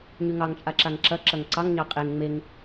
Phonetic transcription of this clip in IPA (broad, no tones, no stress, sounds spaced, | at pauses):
ɲ y ŋ ɑ ŋ t͡ʃʼ a ǁ a ŋ ǁ ɐ ǁ ɐ ŋ ǀ ɑ ŋ ɲ ɑ qʼ e ŋ ŋ͡m e ŋ